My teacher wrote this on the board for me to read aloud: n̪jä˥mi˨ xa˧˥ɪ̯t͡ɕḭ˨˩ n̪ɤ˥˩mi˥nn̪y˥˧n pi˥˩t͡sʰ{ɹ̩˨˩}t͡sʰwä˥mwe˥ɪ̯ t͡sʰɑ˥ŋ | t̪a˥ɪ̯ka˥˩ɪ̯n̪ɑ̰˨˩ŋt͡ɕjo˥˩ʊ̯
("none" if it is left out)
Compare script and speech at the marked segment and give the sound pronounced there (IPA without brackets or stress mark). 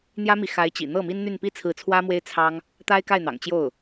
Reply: ɹ̩˧˥